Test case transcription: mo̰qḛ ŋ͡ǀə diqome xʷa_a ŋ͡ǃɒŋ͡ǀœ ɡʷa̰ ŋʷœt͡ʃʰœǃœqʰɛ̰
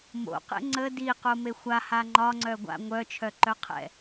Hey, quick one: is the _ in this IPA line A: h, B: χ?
A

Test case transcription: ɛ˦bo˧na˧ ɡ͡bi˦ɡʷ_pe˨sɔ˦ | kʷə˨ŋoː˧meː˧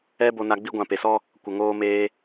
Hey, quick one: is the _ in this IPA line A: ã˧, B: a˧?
A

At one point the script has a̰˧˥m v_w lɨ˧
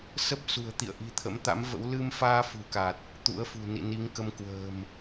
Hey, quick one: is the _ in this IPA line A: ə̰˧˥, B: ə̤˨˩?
A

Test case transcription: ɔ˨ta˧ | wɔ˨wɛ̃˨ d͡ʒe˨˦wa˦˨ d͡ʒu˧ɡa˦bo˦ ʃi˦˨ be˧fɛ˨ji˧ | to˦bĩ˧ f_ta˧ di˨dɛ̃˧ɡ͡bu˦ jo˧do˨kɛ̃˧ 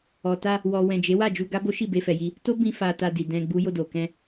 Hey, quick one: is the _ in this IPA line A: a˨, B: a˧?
B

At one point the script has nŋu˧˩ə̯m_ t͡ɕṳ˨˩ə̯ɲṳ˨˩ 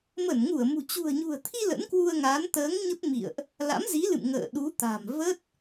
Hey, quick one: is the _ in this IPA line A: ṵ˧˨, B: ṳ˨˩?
B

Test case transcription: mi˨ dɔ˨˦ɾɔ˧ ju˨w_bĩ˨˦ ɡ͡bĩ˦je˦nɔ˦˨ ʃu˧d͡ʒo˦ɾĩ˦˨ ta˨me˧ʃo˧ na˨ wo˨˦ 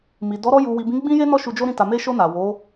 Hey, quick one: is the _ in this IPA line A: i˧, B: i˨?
B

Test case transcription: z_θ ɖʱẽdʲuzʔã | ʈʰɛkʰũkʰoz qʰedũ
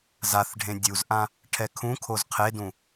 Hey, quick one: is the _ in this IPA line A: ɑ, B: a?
B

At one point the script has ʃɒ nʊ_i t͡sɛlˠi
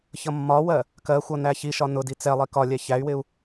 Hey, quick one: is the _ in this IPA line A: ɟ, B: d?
B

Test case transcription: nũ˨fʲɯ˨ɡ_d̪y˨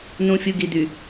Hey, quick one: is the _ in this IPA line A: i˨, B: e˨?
A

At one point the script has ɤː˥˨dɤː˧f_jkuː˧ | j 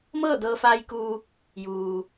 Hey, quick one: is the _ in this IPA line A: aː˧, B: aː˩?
A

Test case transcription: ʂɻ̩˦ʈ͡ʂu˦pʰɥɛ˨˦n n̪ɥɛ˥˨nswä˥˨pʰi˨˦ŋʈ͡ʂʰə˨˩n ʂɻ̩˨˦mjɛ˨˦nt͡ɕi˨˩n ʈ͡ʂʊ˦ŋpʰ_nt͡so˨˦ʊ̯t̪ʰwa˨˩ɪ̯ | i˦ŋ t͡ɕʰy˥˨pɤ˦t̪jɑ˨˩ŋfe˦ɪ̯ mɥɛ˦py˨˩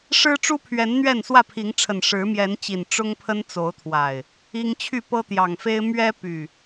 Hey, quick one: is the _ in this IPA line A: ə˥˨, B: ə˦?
B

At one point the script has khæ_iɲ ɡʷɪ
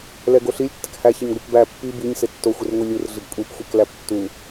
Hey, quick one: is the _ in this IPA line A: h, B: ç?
B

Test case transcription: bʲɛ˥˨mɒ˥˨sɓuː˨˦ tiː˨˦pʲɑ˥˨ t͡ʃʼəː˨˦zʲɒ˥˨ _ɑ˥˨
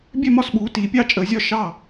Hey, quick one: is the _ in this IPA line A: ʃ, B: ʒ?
A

